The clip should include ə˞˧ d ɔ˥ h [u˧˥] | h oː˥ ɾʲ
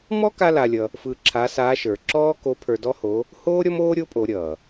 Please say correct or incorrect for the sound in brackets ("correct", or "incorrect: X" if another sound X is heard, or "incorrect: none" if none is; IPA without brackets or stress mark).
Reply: incorrect: o˧˥